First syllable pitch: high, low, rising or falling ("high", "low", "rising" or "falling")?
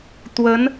rising